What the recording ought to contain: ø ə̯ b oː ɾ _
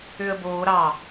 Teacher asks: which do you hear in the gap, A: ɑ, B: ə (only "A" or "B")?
A